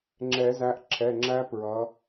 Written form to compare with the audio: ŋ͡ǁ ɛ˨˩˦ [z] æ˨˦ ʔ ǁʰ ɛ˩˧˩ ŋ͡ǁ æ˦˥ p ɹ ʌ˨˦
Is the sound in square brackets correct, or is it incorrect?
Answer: correct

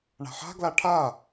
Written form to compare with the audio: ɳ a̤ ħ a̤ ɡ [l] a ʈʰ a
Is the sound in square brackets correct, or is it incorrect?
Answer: correct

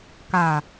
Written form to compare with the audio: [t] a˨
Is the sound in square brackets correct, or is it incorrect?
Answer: incorrect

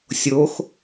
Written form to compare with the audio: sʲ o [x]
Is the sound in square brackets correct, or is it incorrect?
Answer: correct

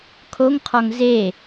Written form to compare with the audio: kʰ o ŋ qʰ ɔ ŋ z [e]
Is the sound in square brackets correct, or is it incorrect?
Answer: correct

